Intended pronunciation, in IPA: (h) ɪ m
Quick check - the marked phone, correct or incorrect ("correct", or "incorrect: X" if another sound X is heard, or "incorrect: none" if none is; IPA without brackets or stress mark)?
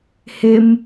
correct